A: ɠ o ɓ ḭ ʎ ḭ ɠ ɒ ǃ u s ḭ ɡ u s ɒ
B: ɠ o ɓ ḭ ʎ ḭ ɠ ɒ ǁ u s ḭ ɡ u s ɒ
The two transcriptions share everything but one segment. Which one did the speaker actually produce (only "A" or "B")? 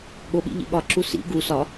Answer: B